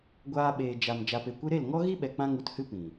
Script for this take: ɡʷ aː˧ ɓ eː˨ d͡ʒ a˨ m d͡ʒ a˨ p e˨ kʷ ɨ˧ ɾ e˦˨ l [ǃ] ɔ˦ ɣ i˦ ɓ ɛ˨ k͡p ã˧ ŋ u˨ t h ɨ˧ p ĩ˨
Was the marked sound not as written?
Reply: yes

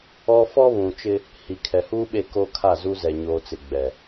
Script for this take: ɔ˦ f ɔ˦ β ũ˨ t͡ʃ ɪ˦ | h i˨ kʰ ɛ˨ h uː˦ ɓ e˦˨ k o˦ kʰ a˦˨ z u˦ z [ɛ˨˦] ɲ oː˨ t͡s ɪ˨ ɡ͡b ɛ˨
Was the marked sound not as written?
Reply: yes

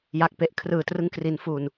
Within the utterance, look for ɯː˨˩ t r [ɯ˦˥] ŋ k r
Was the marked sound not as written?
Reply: no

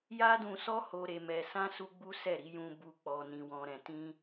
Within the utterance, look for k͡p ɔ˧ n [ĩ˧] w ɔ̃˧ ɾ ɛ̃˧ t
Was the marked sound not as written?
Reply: no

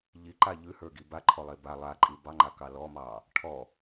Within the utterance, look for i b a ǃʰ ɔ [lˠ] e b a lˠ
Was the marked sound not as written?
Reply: no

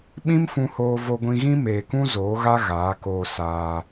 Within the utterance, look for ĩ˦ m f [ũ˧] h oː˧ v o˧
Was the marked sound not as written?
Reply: no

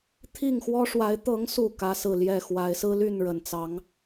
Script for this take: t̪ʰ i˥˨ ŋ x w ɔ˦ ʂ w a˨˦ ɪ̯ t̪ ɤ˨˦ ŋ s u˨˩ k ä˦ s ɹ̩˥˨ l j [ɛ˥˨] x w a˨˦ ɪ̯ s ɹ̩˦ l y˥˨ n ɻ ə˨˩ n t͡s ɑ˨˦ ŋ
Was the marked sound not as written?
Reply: no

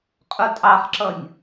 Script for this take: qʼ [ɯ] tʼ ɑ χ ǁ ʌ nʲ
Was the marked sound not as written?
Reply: yes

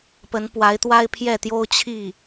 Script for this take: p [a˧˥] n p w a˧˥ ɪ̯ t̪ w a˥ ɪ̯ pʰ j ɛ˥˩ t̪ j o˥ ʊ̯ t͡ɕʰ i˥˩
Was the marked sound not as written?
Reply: yes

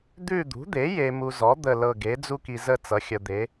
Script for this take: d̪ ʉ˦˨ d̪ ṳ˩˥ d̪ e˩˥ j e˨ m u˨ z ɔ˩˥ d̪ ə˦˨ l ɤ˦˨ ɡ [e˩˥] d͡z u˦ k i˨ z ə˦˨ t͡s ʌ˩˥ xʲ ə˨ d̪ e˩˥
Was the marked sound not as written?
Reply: no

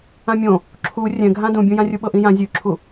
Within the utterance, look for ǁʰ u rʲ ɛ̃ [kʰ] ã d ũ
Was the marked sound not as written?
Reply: yes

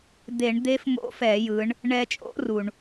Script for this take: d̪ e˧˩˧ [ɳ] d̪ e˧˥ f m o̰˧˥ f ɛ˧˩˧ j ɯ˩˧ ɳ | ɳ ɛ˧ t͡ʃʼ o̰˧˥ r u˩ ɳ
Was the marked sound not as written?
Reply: no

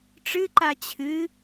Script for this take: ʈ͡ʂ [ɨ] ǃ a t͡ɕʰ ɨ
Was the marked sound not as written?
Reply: no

